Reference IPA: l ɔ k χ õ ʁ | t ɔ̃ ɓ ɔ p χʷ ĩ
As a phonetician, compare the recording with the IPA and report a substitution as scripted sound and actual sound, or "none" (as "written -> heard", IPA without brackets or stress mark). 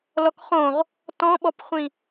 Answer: none